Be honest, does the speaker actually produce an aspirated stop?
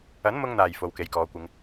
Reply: no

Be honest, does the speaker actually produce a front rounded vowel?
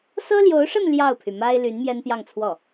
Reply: yes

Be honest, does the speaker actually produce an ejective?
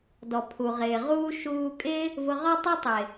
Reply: yes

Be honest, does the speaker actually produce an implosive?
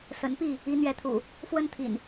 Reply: no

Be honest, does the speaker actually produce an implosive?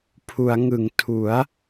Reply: no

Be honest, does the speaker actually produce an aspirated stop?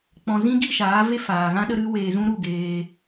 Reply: no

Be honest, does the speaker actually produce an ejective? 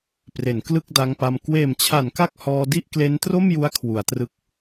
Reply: no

